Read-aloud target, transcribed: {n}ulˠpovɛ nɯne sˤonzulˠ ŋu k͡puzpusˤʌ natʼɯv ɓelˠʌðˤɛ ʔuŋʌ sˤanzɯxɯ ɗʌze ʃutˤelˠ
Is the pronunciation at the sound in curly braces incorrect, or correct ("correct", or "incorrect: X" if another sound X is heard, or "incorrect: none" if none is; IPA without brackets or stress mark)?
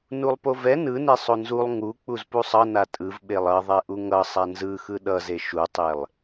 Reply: correct